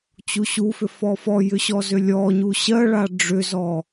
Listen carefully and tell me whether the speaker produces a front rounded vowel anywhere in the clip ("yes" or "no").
yes